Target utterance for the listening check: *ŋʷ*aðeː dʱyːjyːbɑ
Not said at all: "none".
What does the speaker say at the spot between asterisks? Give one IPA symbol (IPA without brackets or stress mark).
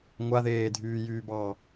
ŋʷ